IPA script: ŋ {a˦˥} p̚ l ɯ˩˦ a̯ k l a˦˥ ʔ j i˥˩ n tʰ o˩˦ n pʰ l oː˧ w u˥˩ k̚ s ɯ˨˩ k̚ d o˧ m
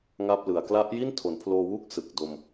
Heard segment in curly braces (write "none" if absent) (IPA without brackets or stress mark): a˥˩